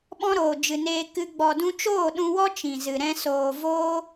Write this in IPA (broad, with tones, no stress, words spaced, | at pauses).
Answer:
ɓɔ̃˦ɾoː˨ d͡ʒɨ˨neː˧ kɨ˧ ɡ͡bɔ˨dũ˧t͡ʃoː˦˨ ɗũ˧wɔ˦ t͡ʃĩ˨zɨ˨ ɾɛ̃˧ soː˨voː˦